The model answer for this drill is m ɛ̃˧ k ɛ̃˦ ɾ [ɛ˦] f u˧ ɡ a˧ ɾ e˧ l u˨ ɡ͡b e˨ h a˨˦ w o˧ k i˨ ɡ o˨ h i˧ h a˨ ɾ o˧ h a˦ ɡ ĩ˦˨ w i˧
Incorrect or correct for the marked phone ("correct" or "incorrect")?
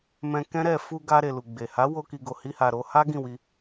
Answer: incorrect